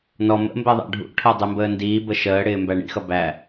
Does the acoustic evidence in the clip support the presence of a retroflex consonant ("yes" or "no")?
yes